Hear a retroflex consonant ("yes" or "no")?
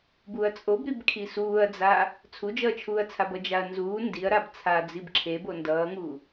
no